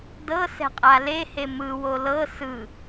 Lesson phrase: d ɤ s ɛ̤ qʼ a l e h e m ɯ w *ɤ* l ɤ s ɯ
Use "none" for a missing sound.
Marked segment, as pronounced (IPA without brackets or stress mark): o